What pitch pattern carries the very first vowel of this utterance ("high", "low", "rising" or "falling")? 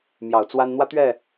low